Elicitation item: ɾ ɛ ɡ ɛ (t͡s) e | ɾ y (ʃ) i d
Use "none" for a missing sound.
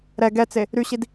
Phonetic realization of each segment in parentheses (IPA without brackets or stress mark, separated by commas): t͡s, ɕ